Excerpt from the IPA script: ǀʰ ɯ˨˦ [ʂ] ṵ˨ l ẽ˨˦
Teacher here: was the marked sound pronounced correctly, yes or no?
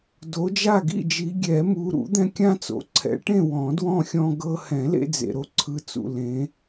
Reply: no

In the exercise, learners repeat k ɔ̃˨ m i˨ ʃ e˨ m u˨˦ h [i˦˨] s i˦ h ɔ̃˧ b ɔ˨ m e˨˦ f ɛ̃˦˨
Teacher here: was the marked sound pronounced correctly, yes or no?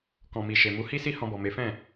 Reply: no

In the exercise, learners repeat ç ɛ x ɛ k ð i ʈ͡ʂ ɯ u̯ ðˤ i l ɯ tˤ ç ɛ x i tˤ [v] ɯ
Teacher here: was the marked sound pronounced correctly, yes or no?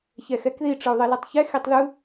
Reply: no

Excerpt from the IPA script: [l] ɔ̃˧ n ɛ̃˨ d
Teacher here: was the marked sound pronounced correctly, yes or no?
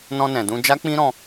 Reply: no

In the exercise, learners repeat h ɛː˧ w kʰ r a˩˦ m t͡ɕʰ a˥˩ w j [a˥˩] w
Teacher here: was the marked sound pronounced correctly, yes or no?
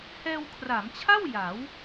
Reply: no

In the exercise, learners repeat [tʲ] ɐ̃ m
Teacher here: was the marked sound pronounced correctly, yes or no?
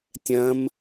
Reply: yes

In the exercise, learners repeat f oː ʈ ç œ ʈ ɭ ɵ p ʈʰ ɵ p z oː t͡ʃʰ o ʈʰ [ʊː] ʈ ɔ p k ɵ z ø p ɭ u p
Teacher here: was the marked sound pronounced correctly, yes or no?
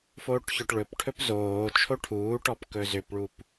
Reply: no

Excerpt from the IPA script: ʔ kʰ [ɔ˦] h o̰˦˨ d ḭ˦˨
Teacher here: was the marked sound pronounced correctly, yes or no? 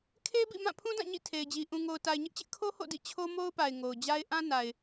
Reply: no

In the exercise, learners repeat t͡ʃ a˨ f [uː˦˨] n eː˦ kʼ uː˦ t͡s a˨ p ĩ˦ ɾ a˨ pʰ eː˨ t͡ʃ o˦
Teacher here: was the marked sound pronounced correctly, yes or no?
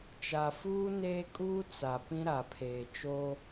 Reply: no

